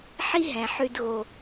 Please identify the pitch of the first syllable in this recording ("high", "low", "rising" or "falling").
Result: high